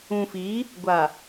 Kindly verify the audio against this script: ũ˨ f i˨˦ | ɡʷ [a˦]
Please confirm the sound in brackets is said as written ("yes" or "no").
no